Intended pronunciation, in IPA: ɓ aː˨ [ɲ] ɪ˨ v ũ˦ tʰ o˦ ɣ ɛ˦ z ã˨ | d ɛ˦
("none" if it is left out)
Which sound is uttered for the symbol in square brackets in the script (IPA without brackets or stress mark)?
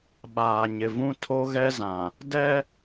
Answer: ɲ